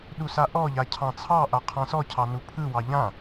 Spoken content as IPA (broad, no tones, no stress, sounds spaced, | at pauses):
ɗ u s a ʔ ɔ ʎ a cʰ ɑ̃ t͡sʰ ɑ ʔ a qʰ ã s ɔ cʰ ɑ n u pʰ ɯ w ɑ ʎ ã